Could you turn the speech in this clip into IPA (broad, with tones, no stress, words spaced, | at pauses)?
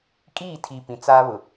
kʼiː˦˨tʰi˨ pĩ˨ t͡sa˦βʊ˨